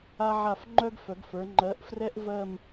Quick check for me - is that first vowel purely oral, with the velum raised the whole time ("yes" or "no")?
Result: yes